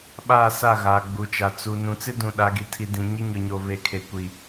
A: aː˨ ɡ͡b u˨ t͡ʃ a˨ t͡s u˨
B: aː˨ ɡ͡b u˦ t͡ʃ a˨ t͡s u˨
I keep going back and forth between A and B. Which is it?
A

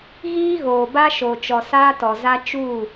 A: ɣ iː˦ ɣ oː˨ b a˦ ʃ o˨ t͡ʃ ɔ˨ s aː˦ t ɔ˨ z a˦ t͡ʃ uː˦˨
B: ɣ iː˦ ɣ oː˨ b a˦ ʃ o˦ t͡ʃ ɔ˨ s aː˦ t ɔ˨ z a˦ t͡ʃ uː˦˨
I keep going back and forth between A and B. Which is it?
A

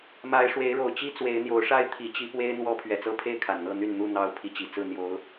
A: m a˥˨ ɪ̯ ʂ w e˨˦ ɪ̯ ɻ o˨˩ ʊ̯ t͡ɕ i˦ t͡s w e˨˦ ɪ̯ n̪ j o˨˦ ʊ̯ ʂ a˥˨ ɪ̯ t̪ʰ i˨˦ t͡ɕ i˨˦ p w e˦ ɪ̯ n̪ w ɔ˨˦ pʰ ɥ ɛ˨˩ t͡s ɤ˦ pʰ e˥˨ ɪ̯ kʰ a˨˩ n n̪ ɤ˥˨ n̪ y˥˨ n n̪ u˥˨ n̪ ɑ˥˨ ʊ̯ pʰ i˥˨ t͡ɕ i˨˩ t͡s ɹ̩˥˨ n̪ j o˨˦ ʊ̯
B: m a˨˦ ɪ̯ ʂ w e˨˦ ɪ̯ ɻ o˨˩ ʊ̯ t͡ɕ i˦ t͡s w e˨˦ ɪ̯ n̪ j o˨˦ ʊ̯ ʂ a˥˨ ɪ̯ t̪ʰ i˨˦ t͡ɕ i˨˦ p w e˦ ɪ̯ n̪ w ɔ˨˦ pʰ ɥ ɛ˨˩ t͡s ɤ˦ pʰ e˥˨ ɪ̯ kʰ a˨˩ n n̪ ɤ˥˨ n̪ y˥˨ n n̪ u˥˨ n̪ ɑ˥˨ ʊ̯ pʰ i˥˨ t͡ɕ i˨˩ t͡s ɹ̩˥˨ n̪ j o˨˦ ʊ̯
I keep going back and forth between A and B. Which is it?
B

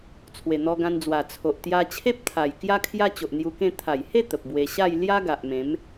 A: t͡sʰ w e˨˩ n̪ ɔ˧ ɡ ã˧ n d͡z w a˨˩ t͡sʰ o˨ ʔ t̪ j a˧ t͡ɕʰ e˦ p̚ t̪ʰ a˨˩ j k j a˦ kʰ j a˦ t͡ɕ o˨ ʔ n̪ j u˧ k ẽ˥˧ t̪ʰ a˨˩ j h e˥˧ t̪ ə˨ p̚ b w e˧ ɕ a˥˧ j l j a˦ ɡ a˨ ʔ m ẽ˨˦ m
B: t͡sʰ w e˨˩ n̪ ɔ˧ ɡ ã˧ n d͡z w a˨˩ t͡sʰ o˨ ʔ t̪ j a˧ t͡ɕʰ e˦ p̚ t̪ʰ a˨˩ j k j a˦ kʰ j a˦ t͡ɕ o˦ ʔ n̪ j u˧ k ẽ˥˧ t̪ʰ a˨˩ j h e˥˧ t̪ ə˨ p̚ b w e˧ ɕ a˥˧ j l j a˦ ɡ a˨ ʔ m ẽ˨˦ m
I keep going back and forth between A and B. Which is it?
A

